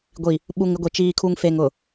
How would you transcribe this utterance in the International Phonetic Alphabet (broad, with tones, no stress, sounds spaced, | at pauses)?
ɡʷ i˨ | ɓ u˨ ŋ ɪ˦ ɡʷ i˨ t͡ʃ iː˨ kʰ u˨ ŋ f e˨ ŋ ʊ˨